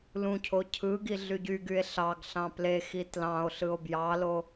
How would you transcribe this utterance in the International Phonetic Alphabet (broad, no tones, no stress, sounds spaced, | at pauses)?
l ũ cʰ o cʰ ɯ ɡ i ɮ y ɟ y ɡ y e̯ ɬ ɑ ɡ ɬ ɑ̃ p l e x i t l ɑ̃ o̯ ɬ ɯ o̯ b j ɑ l o